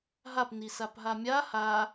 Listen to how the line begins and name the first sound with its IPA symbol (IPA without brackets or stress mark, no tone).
ɦ